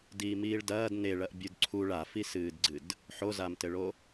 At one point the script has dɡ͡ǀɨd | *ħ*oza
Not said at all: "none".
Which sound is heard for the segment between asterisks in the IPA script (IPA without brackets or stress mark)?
ħ